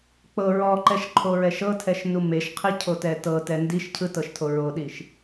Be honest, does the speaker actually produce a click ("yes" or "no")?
yes